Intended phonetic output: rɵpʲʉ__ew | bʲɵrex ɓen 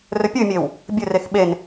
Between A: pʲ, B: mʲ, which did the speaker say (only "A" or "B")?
B